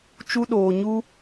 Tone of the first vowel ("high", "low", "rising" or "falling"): high